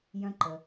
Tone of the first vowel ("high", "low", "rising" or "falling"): high